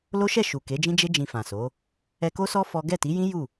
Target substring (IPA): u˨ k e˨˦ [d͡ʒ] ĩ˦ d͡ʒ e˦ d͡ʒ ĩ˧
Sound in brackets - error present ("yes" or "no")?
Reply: no